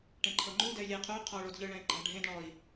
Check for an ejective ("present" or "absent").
absent